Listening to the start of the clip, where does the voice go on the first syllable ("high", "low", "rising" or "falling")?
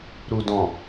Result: low